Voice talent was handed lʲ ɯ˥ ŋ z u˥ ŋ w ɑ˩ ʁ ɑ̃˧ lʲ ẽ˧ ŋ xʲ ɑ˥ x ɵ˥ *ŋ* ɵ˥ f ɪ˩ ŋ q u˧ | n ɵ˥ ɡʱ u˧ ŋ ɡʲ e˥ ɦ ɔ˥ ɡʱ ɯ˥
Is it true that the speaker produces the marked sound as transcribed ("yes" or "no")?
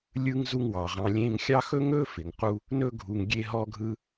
yes